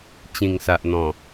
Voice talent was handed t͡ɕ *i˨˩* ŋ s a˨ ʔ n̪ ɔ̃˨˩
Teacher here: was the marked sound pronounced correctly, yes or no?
no